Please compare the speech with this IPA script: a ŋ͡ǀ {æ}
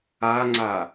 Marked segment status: incorrect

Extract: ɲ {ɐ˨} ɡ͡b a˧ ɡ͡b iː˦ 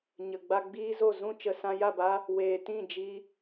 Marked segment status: incorrect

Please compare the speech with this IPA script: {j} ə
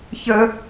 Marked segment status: incorrect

